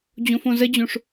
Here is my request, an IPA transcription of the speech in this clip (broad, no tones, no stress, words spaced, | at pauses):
d͡ʑõfõzəd͡ʑõʂ